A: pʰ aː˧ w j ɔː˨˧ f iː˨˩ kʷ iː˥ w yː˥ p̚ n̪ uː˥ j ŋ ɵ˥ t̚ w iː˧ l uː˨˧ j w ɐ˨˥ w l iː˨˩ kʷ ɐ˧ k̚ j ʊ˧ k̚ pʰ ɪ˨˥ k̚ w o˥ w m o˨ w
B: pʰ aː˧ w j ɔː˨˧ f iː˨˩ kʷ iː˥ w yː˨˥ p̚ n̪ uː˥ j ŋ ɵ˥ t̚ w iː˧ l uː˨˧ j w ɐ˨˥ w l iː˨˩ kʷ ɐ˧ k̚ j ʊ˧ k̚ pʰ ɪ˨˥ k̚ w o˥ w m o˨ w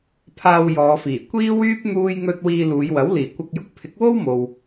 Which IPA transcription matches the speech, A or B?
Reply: A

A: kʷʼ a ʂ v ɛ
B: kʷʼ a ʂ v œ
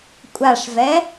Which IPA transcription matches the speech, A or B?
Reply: A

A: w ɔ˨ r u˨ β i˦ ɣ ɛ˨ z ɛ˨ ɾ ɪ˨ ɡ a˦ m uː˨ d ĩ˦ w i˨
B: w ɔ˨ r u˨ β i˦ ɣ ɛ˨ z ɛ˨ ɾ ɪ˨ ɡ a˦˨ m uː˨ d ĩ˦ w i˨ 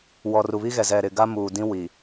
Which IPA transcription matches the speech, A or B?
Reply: A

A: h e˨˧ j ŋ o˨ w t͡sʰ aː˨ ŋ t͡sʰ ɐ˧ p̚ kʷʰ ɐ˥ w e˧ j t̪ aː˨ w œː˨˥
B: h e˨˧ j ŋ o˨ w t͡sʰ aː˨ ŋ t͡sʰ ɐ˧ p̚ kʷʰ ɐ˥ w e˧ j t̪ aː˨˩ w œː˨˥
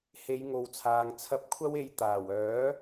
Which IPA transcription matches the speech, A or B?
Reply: B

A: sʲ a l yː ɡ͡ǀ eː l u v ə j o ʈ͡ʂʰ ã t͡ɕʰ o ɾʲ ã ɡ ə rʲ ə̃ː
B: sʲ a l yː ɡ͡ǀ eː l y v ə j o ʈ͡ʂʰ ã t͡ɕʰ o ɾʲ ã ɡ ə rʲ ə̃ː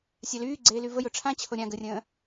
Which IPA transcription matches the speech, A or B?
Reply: B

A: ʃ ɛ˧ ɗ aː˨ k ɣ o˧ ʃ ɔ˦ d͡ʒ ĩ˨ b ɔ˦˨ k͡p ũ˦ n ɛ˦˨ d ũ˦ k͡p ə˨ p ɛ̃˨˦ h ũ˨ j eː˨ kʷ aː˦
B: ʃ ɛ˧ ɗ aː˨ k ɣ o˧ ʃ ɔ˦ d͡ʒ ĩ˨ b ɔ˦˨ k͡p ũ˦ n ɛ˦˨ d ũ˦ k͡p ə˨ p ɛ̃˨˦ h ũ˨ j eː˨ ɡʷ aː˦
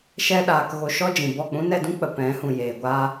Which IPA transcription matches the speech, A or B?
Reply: B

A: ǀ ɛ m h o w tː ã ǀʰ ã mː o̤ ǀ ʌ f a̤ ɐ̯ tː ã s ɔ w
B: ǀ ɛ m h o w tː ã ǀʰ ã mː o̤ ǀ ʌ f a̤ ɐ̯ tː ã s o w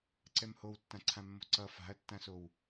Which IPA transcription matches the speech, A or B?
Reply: B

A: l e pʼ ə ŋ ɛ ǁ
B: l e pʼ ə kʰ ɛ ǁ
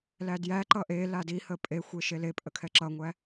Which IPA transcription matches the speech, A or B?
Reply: B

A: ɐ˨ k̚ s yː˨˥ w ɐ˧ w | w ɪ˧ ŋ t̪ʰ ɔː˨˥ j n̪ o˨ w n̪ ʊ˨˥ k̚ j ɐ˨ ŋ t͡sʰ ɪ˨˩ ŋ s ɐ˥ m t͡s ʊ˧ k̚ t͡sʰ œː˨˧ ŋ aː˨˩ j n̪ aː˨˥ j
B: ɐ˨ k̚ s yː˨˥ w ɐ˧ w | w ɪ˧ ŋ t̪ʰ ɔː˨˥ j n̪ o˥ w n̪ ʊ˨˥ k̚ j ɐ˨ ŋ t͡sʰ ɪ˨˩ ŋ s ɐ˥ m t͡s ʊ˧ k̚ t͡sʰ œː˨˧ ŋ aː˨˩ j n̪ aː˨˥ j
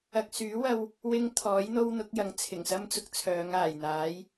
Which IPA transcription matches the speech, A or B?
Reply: B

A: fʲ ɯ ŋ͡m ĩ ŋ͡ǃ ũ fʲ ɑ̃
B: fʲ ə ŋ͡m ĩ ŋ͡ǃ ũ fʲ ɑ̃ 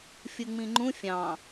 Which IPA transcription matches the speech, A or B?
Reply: A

